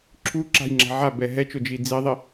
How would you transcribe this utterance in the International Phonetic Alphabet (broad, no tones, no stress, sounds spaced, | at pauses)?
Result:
ǁʰ u ǁ a̤ j ŋ͡ǁ a̤ ʕ a b ɛ ɦ ɛ t͡ʃ o d͡ʒ i d͡z i ðˤ i